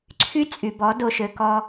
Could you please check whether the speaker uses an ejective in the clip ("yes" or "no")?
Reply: yes